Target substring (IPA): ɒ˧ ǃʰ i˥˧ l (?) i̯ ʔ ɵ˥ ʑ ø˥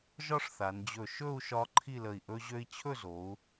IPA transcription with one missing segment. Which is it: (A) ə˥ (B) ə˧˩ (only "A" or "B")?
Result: B